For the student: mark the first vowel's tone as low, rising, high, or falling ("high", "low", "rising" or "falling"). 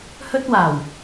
high